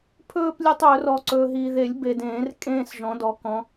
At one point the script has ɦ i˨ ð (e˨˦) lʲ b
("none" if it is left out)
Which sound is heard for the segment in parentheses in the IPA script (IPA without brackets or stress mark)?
e˨˩˦